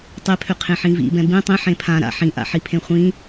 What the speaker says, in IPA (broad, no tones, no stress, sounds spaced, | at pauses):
tˤ e pʰ ø qʰ ẽ ħ ĩ v ḭ b ɛ̃ b ĩ tˤ ĩ ħ ẽ pʰ ã ɾ a̰ ħ ĩ ʔ a̰ ħ i pʰ ẽ χʷ ĩ